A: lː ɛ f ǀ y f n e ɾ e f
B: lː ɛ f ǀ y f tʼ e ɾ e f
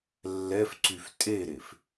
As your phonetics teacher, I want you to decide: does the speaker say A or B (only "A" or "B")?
B